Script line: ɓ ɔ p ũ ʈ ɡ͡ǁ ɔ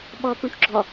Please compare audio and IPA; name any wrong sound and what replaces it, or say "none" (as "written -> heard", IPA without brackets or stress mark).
none